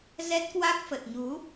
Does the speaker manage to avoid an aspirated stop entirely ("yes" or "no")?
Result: yes